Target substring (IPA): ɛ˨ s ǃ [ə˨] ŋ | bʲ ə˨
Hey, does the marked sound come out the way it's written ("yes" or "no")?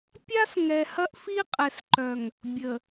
no